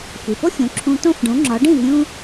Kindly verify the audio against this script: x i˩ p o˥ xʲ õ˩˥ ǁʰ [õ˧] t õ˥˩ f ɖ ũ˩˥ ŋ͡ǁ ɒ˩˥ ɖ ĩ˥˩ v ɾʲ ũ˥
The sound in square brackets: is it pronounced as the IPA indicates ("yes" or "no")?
no